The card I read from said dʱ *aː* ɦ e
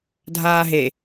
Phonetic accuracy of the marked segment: correct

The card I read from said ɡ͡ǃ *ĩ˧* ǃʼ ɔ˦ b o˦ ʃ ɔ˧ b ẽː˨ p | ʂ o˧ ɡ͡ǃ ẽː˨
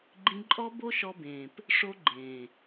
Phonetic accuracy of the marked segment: correct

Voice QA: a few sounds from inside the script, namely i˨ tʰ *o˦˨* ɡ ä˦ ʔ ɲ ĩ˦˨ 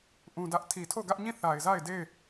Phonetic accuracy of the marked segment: correct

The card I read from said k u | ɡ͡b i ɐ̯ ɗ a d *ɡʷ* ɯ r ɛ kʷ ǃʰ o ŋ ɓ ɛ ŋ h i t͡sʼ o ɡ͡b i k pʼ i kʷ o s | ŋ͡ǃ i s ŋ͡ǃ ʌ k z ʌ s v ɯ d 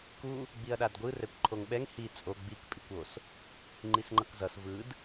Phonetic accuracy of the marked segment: correct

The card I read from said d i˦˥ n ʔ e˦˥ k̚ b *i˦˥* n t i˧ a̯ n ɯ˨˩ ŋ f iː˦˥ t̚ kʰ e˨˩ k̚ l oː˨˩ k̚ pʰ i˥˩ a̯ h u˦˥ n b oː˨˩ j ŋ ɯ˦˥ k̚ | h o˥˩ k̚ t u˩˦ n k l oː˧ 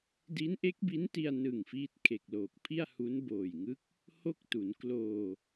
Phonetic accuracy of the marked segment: correct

